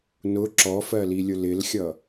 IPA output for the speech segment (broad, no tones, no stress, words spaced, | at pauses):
nʊ ǁɔfɜlilʲʊ lɪlxʲʌ